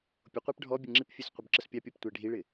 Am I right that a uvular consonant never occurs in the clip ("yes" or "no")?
no